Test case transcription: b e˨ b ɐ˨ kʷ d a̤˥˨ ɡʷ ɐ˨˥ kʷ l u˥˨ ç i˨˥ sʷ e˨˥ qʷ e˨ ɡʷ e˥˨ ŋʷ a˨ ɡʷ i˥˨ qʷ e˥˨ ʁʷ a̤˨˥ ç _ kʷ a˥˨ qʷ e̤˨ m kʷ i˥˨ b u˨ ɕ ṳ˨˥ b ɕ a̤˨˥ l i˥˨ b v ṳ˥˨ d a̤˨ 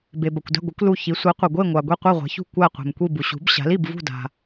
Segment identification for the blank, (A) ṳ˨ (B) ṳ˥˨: B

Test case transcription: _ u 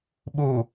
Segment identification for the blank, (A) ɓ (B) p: A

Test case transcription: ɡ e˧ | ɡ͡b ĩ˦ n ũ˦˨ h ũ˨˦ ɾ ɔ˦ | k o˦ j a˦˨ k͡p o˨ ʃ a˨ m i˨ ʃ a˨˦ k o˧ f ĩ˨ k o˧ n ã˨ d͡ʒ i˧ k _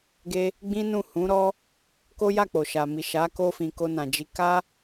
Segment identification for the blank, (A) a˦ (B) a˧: A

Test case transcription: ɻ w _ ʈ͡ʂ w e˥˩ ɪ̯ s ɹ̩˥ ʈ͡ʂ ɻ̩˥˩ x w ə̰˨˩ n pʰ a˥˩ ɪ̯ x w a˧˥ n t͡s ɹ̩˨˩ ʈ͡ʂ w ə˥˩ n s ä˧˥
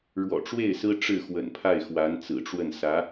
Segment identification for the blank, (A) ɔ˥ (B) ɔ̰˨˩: B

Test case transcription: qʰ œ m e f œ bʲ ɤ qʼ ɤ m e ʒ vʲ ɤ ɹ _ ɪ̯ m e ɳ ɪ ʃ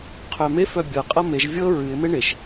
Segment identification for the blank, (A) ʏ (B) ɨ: B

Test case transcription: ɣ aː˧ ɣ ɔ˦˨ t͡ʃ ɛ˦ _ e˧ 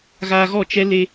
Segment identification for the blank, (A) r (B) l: B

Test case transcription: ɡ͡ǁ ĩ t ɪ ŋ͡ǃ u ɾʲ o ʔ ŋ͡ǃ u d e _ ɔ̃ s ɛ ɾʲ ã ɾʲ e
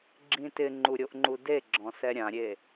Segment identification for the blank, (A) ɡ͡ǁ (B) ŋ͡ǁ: A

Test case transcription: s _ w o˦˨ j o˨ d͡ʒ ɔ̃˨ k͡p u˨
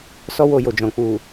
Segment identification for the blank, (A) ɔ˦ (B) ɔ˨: A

